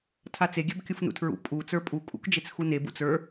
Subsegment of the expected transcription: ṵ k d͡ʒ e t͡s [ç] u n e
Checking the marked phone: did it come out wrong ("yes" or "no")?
yes